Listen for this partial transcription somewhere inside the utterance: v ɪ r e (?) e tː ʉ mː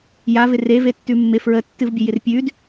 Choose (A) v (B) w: A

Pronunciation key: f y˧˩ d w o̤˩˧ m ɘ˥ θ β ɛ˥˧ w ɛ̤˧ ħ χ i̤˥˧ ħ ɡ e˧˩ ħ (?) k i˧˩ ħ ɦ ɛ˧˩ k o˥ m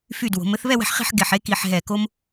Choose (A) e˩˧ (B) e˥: B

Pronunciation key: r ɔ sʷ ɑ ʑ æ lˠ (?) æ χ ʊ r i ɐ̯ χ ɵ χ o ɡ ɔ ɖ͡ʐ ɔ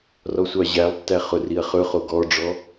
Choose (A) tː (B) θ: A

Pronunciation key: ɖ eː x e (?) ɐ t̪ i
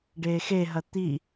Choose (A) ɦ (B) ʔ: A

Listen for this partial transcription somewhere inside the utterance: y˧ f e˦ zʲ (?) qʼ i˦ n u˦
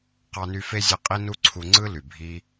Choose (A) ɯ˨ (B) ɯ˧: B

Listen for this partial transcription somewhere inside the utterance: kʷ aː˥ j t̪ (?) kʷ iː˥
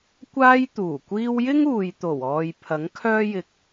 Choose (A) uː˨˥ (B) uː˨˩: B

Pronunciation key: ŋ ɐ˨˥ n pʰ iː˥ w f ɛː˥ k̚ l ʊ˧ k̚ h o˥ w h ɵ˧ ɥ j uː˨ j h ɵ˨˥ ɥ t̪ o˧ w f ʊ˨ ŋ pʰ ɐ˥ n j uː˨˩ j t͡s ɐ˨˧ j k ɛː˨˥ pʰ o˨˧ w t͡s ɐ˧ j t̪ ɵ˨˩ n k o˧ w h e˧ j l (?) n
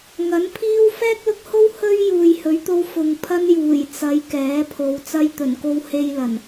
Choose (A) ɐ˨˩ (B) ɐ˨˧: A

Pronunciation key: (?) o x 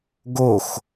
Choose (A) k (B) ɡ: B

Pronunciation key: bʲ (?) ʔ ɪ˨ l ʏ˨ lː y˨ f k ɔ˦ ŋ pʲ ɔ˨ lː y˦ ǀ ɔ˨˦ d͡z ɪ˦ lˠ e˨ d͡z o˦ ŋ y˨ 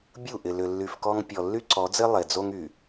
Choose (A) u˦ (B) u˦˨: B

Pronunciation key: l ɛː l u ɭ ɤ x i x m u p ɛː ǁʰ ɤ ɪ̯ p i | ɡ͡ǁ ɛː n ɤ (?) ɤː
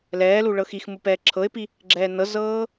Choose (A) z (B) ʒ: A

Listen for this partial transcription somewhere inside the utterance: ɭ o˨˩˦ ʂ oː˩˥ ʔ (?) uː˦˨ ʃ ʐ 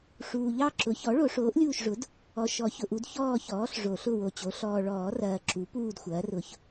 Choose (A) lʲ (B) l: A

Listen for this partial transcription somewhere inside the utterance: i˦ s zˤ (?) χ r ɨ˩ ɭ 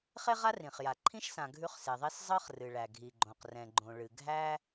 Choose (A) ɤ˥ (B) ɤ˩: A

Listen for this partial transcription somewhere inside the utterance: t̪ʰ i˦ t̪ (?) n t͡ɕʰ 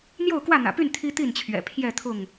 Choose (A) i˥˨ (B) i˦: A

